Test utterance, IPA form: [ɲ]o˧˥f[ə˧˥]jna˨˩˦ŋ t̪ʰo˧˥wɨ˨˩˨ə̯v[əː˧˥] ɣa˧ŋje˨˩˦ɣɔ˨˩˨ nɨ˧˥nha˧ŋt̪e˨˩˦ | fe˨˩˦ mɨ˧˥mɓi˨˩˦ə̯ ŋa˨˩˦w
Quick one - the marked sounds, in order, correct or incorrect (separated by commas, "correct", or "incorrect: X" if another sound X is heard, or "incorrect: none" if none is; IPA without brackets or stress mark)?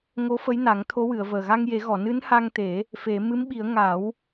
incorrect: ŋ, correct, incorrect: əː˨˩